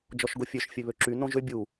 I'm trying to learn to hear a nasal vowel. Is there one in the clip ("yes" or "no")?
yes